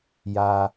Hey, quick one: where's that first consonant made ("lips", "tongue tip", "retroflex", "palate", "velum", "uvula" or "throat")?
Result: palate